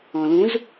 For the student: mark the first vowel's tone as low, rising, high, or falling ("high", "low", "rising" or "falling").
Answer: low